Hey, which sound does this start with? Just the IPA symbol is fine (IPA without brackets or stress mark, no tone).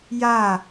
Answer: j